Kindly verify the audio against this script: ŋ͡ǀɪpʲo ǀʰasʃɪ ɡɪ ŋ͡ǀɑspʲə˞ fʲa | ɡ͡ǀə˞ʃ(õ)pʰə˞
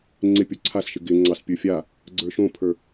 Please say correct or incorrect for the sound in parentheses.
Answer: correct